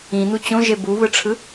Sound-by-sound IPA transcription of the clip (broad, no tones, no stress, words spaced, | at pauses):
ĩn̪u t͡ɕõʒe buβɯʈ͡ʂʰɯ